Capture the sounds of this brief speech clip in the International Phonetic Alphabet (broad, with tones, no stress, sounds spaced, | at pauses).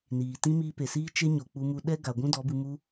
n iː˨ t ĩ˦ m iː˦ p e˨ s iː˦ t͡ʃ e˦ ɲ o˨ k͡p u˧ m u˧ ɗ ɛ˦ ɡ a˨ ɡʷ ũ˦ d ɔ˨˦ b ɨ˧ m u˧